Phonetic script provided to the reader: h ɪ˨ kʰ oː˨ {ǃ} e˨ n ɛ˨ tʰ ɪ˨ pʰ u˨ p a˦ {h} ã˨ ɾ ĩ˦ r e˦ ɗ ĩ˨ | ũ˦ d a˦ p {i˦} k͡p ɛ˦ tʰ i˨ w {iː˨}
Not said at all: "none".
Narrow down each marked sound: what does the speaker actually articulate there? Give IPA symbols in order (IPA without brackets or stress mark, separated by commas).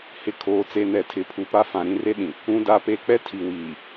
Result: t͡s, f, e˦, iː˨